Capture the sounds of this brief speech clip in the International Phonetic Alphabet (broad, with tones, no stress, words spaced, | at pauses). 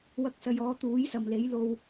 wɐ˨˥k̚sɐ˨j ɔː˨˧t̪uː˨˥jsɐ˨mle˨˥j lo˧w